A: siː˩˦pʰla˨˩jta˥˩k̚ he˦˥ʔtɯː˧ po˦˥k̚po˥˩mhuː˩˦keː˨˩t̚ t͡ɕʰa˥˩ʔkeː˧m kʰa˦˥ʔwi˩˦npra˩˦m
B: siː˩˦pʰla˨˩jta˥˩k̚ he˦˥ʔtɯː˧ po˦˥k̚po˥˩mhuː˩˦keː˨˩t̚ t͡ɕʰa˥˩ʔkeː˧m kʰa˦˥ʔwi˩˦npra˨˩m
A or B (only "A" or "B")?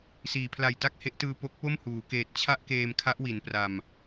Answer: B